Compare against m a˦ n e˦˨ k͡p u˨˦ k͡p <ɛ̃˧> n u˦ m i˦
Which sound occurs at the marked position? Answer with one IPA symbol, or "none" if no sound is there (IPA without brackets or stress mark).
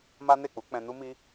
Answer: ɛ̃˧